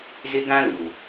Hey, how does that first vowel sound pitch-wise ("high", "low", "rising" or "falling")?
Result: high